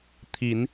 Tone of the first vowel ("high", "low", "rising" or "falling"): rising